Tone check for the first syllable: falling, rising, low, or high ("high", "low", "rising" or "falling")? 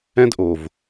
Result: high